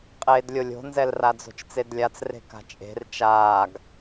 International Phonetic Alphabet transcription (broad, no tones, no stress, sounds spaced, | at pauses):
qʼ eː d lʲ o lʲ o̤ n z ɛ l r a d͡z o̤ t͡ʃ t͡s e d lʲ a t͡s r e̤ k a̤ t͡ʃʼ e̤ r t͡ʃ aː ɡ